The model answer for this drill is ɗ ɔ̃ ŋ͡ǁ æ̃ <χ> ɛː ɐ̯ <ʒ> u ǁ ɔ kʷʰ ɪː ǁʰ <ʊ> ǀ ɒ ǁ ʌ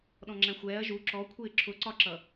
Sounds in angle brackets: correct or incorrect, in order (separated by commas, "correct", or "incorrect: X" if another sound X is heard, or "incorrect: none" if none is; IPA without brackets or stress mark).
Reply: incorrect: xʷ, correct, correct